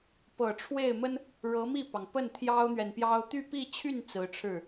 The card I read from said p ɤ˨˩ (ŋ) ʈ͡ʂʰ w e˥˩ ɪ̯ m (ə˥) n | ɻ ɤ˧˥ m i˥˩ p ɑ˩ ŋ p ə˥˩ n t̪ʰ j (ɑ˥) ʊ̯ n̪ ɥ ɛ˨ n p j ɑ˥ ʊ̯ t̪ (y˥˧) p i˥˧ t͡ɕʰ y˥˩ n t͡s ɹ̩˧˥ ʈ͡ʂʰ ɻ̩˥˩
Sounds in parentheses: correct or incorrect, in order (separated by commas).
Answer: incorrect, correct, correct, correct